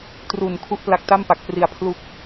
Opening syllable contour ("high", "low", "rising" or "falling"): low